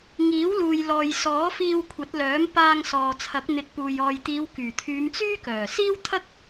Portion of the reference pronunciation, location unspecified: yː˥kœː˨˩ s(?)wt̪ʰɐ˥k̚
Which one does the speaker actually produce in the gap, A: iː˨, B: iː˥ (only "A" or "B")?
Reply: B